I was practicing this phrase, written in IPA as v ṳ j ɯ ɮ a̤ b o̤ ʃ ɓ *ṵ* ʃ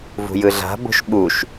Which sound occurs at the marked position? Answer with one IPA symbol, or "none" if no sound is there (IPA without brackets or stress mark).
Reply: u